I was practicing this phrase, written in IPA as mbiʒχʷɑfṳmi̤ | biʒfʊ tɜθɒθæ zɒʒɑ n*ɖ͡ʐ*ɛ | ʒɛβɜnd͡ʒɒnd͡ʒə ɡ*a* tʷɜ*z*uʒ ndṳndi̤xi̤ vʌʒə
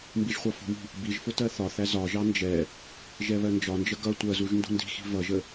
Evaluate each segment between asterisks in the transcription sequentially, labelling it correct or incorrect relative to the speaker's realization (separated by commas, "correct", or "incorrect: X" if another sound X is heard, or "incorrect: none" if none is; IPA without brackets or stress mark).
incorrect: d͡ʒ, incorrect: ʌ, correct